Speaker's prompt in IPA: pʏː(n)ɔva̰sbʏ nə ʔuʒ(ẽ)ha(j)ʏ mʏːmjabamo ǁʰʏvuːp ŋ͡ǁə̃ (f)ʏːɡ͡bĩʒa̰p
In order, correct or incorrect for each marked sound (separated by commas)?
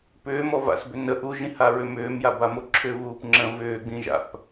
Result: incorrect, incorrect, incorrect, incorrect